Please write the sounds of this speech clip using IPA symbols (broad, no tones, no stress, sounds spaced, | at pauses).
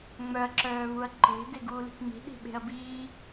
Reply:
ŋ͡m œ ɐ̯ ǁ œː β u ɐ̯ ǃ e̤ d e ɡ uː l i̤ k ŋ͡m i̤ ɗ i̤ ɓ e̤ ɐ̯ b iː